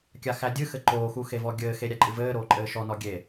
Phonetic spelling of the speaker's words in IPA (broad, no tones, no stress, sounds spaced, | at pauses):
kʲ a x æ dʲ ɨ x ɘ ǃ oː x u x e v ɔ ɡʲ ɘː x e ɾʲ æ ǃʼ ɨ v ɘː ɾ oː ǃʼ ɘː ʃ ɔ n ɔ ɡʲ e